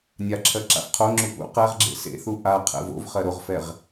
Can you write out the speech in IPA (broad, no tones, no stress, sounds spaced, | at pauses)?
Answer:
nʲ a ǁʰ ɜ ǁ a̰ f qʰ o ŋ͡ǁ u p ṵ q ɛ ʁ ɡ͡ǁ ḛ s ḛ θ u ʔ a qʰ ɛ̰ v o̰ v χ ɜ ɾ o ʁ f ɛ ʁ